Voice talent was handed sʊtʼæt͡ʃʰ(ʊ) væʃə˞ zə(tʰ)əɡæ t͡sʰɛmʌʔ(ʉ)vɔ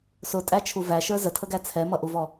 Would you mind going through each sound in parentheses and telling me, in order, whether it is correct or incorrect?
incorrect: u, correct, incorrect: u

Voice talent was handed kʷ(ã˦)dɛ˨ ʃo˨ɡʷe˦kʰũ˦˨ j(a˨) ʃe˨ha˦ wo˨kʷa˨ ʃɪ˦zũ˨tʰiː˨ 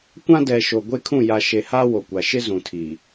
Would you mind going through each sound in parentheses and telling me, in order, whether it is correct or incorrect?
correct, correct

